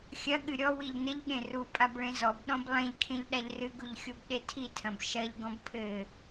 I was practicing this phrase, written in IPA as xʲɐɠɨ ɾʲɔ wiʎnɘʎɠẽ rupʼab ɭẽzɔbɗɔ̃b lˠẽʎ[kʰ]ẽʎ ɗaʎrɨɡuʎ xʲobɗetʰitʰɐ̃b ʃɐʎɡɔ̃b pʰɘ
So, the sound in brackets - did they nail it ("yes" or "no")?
yes